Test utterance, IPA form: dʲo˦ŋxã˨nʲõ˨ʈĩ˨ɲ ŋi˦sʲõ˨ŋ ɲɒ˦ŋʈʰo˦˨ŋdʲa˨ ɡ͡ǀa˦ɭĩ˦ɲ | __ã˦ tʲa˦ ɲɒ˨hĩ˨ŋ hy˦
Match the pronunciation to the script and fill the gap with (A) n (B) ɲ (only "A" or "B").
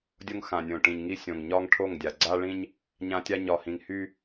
B